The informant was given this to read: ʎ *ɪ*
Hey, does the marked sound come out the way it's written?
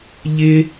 yes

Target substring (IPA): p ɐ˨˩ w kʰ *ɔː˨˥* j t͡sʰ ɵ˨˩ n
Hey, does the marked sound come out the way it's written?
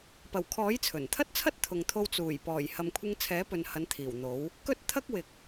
yes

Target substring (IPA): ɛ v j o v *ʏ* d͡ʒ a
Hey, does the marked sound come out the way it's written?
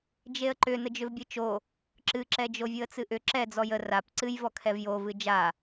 no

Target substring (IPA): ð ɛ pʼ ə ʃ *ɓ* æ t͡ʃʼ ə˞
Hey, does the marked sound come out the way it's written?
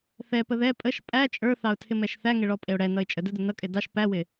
no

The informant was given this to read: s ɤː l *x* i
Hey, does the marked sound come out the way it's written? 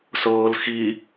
yes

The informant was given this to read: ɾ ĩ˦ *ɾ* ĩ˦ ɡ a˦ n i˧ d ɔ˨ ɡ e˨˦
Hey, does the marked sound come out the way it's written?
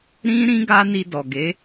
yes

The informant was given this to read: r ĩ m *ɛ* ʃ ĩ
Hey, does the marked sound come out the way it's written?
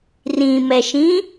yes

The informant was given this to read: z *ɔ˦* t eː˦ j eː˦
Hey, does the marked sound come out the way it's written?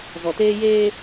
no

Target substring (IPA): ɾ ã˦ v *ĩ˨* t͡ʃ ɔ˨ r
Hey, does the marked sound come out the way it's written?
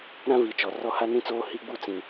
no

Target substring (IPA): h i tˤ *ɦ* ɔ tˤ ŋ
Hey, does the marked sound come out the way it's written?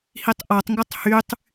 no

